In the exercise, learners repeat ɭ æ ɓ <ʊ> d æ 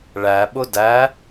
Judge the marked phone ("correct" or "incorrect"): correct